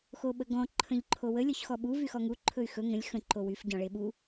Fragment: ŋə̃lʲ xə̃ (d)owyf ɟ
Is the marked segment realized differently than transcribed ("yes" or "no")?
yes